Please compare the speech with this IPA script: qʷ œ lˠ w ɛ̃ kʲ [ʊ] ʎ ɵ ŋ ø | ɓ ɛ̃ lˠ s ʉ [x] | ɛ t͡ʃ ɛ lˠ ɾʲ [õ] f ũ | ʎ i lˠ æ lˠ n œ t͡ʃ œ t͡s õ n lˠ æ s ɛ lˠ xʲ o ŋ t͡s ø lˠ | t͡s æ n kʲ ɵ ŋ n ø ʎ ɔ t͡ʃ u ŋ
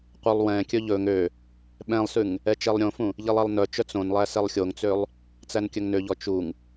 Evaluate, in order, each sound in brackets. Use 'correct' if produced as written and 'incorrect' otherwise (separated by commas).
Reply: incorrect, incorrect, correct